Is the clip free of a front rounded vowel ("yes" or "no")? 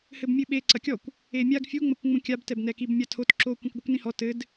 yes